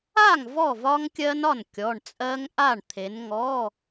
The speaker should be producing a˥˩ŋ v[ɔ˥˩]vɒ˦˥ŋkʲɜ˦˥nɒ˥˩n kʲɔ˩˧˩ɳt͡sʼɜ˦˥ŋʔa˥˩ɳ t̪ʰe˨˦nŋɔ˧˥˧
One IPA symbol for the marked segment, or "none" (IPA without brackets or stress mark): ɔ˥˩